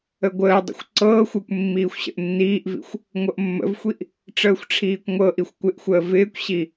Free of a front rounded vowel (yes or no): yes